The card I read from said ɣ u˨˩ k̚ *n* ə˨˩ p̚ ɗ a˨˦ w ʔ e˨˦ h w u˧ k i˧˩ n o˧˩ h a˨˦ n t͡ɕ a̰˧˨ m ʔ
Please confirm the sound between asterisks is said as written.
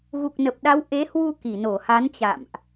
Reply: yes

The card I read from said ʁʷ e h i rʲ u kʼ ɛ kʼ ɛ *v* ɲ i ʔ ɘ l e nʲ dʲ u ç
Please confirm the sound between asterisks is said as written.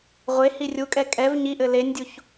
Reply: yes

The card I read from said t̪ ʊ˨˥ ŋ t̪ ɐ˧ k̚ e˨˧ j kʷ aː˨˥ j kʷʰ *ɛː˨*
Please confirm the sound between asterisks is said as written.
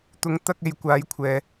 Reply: yes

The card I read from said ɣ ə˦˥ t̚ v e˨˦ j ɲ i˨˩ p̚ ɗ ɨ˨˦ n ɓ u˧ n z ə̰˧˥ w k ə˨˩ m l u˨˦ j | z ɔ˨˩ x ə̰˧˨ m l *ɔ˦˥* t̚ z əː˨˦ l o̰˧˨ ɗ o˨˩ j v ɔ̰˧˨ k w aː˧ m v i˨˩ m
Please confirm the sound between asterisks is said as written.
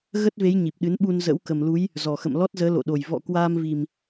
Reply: yes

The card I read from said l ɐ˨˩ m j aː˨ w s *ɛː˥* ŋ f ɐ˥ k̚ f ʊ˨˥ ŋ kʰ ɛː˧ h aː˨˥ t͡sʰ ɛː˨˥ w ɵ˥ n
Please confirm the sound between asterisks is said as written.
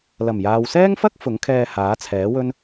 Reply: yes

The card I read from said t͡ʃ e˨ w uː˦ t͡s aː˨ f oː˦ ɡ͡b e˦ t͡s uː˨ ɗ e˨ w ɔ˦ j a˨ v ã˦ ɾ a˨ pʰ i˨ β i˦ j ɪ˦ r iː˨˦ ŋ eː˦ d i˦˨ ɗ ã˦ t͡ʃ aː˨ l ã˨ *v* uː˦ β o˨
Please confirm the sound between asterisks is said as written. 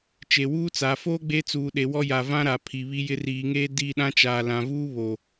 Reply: yes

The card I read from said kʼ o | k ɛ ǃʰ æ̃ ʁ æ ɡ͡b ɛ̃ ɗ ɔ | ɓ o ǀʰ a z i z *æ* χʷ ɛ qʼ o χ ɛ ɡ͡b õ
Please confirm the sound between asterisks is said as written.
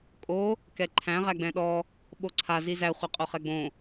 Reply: yes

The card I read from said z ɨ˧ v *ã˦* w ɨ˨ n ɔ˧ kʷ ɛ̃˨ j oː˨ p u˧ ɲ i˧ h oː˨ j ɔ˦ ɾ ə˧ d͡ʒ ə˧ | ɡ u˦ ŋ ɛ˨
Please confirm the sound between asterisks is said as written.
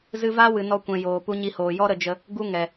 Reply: no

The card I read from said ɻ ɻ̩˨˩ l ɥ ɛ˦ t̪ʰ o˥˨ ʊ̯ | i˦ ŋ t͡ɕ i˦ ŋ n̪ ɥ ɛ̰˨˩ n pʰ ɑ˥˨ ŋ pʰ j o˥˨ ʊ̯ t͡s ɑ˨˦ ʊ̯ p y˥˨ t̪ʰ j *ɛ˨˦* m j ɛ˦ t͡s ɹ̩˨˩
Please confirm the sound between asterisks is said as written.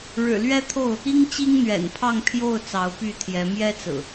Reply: yes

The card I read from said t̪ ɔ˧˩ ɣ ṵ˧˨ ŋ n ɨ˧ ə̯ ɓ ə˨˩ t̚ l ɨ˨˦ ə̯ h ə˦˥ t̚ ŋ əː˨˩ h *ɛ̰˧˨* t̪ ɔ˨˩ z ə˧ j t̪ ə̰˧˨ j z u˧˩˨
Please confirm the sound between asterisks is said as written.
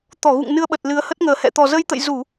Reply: yes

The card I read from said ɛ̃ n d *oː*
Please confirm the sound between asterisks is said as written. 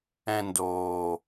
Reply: yes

